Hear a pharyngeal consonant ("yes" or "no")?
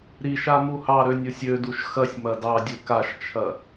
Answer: no